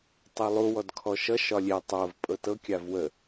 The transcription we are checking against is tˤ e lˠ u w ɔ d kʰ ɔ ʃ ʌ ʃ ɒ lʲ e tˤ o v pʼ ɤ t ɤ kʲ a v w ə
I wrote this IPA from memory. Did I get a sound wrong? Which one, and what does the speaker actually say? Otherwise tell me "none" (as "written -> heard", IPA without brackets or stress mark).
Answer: none